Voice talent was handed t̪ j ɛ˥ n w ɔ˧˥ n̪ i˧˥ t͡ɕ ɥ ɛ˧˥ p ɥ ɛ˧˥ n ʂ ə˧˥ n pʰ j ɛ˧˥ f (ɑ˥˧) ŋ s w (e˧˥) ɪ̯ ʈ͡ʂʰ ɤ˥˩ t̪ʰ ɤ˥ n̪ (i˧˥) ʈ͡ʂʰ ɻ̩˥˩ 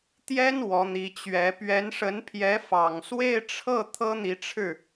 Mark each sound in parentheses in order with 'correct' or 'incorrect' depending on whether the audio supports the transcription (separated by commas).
incorrect, incorrect, correct